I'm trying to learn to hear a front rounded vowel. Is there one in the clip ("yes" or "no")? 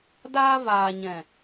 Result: no